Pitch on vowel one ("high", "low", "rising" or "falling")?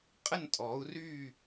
falling